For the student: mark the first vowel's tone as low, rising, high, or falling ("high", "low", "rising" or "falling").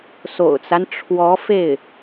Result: low